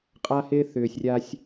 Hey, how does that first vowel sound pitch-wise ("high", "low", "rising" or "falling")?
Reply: high